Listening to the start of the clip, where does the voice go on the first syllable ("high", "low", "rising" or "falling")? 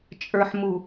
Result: low